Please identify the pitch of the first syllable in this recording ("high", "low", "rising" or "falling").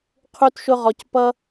high